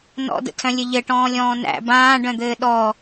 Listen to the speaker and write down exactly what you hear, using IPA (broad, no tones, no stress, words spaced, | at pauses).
nɔ̰də̰tʰœ̃lʲɘ ʎɘʈɔ̃ːlʲɔ̃ː næ̰ bãːɖœ̃d̪ɘː ɗɔ